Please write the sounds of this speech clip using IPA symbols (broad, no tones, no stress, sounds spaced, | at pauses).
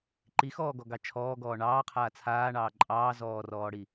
ǃ i x ɔː ɡ ɔ ɡ ɑ t͡ʃʰ ɔː ɡ ɔː ɳ ɑː qʰ aː t͡sʰ aː ɳ ɑː ǃʼ ɑː z ɔː r ɔː ɽ i